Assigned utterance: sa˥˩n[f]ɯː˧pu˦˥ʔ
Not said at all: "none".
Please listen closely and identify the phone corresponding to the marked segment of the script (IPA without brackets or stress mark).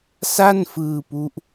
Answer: f